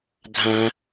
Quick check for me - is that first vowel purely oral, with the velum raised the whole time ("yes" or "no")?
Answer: no